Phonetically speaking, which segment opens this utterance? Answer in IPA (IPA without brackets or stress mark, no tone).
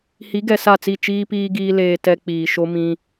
h